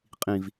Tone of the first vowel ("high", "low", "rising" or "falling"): low